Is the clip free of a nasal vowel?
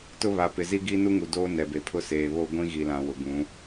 no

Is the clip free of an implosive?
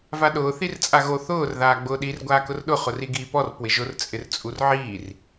no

